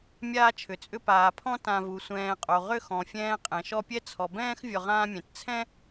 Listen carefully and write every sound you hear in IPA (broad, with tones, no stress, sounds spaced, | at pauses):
mʲ aː˦ t͡ʃʰ ʏ˩ t͡sʼ ʏ˦ p aː˩ pʰ ɔ̃˥ t ã˨ v u˩ sʷ ɛ̃ː˨ qʼ o˩ ʁ ʏ˥ x ɔ̃˩ fʲ ɛ̃ː˦ qʼ ɛ̃˩ ʃ ɔ˦ pʲ ɛ˥ t͡sʰ ɔ˩ b ɛ̃ː˥ x vʲ ɔ˨ ʁ ãː˦ mʲ ɛ̃˩ t t͡sʰ ɛ̃˥